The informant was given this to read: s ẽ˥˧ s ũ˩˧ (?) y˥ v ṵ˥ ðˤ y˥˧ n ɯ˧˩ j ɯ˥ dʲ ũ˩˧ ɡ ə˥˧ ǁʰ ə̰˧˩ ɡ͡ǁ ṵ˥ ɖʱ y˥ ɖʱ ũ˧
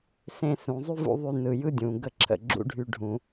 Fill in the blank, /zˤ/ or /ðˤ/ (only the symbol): zˤ